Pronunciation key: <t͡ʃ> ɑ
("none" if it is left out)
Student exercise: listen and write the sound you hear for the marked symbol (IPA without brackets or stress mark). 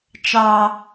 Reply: t͡ʃ